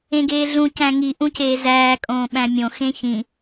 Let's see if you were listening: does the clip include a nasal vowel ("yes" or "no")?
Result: yes